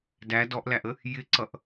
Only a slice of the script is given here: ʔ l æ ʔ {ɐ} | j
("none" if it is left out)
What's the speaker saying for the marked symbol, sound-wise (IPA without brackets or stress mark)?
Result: ə